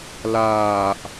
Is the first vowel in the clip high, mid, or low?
low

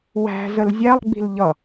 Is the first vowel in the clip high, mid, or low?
low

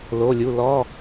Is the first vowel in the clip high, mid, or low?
mid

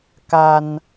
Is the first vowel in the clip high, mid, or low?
low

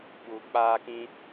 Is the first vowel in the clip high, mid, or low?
high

